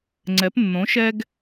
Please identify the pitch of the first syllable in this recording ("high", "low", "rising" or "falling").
rising